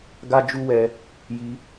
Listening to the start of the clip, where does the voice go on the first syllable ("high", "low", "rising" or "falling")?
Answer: high